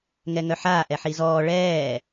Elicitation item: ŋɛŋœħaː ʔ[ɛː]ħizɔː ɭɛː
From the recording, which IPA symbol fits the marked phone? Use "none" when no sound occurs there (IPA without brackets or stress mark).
ɛ